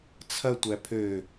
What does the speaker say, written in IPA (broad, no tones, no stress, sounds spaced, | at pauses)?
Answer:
t͡sʰ ɐ tʷ æ pʰ ø